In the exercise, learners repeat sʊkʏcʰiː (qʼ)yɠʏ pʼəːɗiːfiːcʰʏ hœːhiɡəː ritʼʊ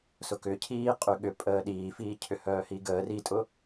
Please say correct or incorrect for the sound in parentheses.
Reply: correct